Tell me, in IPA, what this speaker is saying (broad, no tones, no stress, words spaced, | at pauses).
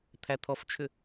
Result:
t̪ʰæt̪ʰɔft͡ʃʰʏ